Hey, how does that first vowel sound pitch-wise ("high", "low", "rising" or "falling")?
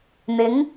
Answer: rising